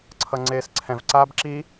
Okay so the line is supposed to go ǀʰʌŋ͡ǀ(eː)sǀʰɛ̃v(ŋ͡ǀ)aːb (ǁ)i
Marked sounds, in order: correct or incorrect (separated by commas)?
correct, incorrect, correct